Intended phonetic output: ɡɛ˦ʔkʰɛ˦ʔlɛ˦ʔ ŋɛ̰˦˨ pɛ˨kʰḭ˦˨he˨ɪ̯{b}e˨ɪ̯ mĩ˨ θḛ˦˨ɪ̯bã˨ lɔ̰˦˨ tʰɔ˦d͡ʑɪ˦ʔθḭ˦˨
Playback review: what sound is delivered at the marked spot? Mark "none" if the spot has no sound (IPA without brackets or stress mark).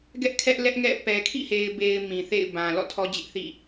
b